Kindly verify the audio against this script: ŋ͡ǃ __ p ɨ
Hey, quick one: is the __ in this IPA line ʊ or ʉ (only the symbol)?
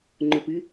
ʊ